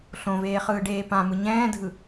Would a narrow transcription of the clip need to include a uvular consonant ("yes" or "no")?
yes